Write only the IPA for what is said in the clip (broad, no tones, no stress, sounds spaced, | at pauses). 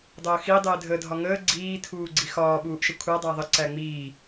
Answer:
dˤ əː x i dˤ ɪː dʱ ə dʱ ɒ ŋ əː ɡ͡ǀ iː tʰ uː ɡ͡ǀ i x ɒː ɓ uː ʔ ʃ ə kʷʰ æ dˤ æ ðˤ ə ǀ æ ŋ͡m iː